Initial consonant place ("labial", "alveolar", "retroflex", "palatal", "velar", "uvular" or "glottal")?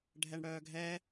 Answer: retroflex